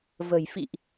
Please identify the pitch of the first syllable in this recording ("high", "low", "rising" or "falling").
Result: low